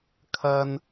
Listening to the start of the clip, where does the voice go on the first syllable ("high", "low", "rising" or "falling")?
low